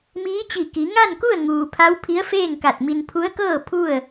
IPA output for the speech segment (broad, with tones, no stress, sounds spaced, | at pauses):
m iː˧˥ t͡ɕ i˧˩ k i˩˧ ŋ a˥˨ n k u˥˨ ə̯ ŋ uː˩ pʰ a˧˥ w pʰ i˧˥ ə̯ f eː˥˨ ŋ k a˧˩ t̚ m i˧ n pʰ u˧˥ ə̯ k ɤː˥˨ pʰ u˥˨ ə̯